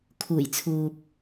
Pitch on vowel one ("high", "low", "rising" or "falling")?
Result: low